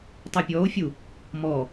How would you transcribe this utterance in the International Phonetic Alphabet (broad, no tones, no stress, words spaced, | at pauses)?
tˤøpʲɔo̯fʲu | mɔ